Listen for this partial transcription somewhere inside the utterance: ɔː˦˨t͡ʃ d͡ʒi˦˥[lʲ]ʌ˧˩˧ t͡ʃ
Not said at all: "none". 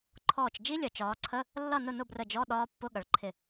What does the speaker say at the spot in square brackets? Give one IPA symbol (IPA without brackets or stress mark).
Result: lʲ